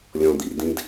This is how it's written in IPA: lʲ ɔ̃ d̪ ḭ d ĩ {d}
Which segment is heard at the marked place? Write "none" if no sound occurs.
d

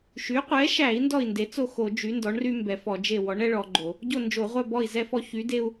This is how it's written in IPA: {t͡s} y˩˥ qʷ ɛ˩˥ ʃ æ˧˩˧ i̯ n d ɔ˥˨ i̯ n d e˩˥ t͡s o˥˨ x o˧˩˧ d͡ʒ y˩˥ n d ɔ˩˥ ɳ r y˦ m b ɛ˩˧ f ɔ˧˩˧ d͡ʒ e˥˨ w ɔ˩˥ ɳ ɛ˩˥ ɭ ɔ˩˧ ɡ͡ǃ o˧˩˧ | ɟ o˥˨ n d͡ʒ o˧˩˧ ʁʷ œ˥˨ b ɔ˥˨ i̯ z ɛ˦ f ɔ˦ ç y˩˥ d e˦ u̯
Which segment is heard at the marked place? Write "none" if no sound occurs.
ʃ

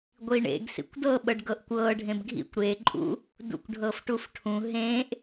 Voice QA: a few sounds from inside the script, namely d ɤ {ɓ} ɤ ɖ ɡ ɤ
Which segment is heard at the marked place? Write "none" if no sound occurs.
ɓ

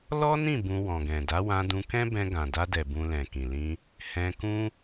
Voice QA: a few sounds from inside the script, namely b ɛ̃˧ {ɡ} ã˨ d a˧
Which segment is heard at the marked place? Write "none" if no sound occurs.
ɡ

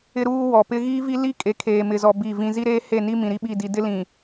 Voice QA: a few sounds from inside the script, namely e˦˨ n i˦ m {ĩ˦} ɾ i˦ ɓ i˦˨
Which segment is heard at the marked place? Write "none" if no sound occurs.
ĩ˨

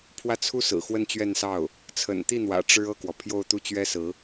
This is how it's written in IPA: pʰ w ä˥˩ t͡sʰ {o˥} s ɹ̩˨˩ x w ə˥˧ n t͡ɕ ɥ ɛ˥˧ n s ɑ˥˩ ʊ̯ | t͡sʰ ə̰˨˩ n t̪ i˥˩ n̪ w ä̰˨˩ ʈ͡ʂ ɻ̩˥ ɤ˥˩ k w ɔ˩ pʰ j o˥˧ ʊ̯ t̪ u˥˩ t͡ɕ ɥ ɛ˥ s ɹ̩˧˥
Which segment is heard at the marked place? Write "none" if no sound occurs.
u˥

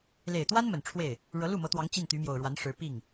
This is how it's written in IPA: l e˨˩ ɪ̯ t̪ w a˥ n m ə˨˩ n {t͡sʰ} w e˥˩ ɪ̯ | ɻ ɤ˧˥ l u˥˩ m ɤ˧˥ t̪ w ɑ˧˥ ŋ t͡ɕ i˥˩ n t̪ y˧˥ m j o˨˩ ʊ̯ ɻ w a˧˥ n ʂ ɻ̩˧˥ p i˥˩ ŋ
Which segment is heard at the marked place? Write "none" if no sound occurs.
ʈ͡ʂʰ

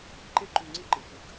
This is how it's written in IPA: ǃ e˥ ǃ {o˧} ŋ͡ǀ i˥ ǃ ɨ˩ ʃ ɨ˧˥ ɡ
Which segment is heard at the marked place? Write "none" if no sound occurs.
u˧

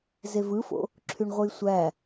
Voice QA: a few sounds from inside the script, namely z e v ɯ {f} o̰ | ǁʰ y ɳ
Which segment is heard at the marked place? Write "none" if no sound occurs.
f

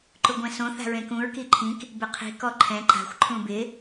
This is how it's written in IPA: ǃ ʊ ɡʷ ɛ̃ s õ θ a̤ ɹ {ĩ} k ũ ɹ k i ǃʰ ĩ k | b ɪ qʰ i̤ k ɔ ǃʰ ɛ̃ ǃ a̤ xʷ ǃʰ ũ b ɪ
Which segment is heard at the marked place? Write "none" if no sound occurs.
ẽ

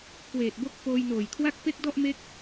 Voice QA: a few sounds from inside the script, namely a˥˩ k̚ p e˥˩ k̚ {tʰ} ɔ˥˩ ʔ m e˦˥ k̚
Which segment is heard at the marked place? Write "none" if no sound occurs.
d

